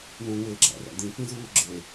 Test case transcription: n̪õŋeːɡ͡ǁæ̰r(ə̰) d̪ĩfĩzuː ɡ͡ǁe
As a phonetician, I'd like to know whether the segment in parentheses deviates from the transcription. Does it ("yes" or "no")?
yes